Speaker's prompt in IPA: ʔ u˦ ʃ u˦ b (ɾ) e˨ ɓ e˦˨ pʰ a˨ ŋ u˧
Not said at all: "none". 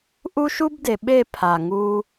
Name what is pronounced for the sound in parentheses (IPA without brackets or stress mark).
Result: d